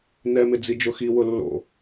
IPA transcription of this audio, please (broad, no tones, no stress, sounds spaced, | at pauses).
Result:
n ɛ m ɪ d͡z i d͡ʒ ʊ x i w ʊ lː o̰